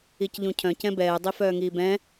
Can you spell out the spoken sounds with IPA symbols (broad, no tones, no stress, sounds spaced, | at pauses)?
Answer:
i c ʎ ũ cʰ œ̃ c ɛ̃ b ɛː dˤ i f œː ŋ iː b ɛ̃